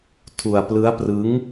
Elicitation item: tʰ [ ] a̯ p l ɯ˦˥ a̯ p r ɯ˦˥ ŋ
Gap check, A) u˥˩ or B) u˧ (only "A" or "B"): B